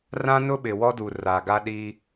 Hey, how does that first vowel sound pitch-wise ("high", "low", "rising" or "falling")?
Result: high